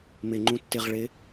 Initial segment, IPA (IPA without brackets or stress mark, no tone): m